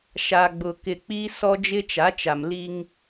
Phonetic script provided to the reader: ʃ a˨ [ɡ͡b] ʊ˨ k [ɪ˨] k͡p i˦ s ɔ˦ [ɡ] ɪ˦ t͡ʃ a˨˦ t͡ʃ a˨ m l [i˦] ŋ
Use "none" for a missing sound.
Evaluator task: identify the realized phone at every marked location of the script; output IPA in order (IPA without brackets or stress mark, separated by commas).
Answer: ɡ͡b, ɪ˨, d͡ʒ, i˦